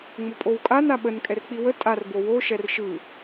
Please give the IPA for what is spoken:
ŋ͡m ʊ pʼ o w kʼ a n a ɓ ə n kʼ ɛ r k͡p i w ə tʼ a r b o w o ʃ ɛ r ʃ ɯ

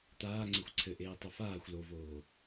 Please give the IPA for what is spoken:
t̪ aː ŋ͡ǀ e xʷ ǀʰ ɘ ʔ eː tˤ ɐ f aː xʷ l o v oː

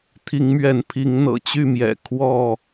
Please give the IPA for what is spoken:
t̪ʰ i˨˦ ŋ m ɥ ɛ˨˦ n pʰ i˨˦ ŋ n̪ ɤ̰˨˩ t͡ɕ y˥˨ m j ɛ̰˨˩ kʰ w ɔ˥˨

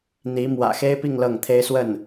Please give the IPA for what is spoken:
n̪ i˧˥ m w ä̰˨˩ x e˥ ɪ̯ p i˥˧ ŋ l ɤ˥˩ ŋ t̪ʰ e˥ ɪ̯ s w ə˥˩ n

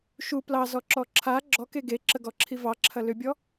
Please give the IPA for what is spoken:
ʃ u p l ɑ z ɔ ǁ ɔ ǁʰ a ɡ͡ǁ ɔ k e ɡ e ǁ ə ɡ ɔ ǁʰ i v ɑ ǁʰ ɐ l ʏ bʲ ɔ

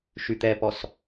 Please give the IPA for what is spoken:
ʃ y t̪ ɛ p ɔ s

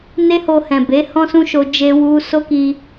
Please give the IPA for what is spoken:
n e˦ h o˧ h ɛ̃˨ b e˨˦ h ɔ̃˦ s ũ˦ ʃ o˧ d͡ʒ e˧ w u˧ s o˦ k i˧

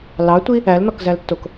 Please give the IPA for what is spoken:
l ɑ tʷ i | æ l n ɔ k z æ l tː o k

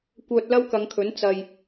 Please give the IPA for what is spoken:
kʷ œː˧ t̚ l ɐ˥ w k ɐ˨˧ ŋ kʰ ɵ˨˥ n t͡s ɐ˧ j

